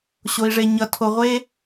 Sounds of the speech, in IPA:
ɕ o˨ i̯ ʐ e˨ ɲ ʌ˨ tʰ o˨ ʁʷ e˥

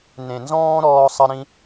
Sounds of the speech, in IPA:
n ẽ˨ n z ɔ̃ː˦ ɾ ɔː˧ sˤ ə˦ ɾ ĩ˦

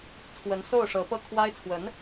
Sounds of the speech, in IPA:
t͡sʰ w ə˧˥ n s o˥˩ ʊ̯ ʂ ɤ˧˥ p ɤ˥˩ kʰ w a˥ ɪ̯ t͡sʰ w ə˧˥ n

